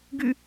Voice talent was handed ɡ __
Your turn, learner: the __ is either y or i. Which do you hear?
y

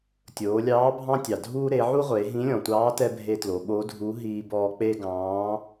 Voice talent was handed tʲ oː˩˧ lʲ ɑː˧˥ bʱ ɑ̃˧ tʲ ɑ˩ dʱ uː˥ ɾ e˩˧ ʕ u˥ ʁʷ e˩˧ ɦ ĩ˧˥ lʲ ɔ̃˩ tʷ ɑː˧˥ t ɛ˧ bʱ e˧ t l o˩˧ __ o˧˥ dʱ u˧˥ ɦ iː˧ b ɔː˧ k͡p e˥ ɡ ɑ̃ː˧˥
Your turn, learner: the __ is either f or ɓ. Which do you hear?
ɓ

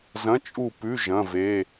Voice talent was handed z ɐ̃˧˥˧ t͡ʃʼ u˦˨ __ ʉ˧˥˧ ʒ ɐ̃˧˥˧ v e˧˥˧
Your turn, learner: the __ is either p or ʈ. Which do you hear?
p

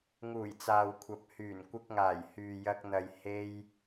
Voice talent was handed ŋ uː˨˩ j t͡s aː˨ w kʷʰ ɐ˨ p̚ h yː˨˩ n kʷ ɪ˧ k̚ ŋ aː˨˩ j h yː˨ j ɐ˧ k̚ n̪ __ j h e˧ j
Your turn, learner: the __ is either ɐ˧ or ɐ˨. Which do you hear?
ɐ˨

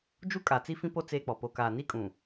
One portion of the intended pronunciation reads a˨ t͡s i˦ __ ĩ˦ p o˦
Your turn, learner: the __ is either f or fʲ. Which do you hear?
f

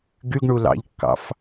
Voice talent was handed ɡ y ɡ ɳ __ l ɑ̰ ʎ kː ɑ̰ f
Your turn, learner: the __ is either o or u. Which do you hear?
u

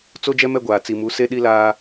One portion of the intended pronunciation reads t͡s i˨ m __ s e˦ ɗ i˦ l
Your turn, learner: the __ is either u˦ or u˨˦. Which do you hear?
u˨˦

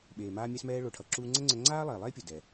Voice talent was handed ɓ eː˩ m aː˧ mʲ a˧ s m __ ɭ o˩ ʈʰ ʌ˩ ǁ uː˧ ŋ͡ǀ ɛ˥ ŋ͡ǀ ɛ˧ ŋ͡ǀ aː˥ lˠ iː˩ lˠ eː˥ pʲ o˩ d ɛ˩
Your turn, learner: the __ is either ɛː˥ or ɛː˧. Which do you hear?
ɛː˧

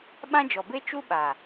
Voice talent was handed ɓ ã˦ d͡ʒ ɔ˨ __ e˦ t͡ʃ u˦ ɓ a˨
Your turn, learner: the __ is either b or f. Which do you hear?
b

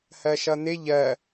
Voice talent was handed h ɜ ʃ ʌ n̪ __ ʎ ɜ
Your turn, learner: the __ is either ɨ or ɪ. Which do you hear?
ɪ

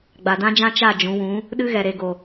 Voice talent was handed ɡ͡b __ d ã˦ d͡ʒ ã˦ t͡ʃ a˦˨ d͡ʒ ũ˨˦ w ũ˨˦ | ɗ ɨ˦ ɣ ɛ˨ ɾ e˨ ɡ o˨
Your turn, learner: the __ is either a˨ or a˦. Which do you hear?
a˨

